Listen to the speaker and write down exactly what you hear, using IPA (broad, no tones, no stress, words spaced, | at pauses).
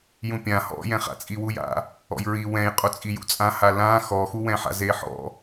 jũpʲã hɔ̰jɛ̃χa̰ t͡sʼiwuja̰ | ɔ̰jɹi wɛ̃jqʼo t͡sʼijṵt͡sʼãha lã xɔxuwɛ̃ħa̰ zeħɔ̰